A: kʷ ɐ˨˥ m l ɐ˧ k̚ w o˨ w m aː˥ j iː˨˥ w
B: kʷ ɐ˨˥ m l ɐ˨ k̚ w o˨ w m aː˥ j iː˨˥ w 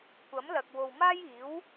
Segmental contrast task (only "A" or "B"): B